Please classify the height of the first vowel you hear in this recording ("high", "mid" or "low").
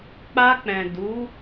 low